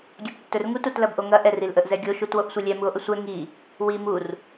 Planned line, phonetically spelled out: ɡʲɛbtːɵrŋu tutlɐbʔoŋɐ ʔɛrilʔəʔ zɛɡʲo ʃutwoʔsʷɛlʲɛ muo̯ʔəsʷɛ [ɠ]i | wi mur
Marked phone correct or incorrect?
incorrect